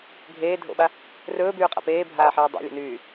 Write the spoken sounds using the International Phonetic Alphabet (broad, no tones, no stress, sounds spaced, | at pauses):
ɡʱ eː dʱ o̰ ɓ a | r ɵː b yː qʼ a̰ p eː bʱ aː ħ eː dˤ a̰ lʲ o̰ n yː